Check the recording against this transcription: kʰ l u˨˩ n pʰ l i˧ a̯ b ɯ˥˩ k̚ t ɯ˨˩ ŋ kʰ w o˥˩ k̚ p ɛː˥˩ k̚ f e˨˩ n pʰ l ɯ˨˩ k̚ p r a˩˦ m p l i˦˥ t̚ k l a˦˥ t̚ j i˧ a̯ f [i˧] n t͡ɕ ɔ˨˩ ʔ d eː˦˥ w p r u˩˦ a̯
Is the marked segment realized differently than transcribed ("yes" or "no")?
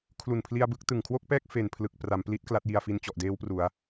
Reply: no